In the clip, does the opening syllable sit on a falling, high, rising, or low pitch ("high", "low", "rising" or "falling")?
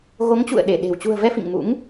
rising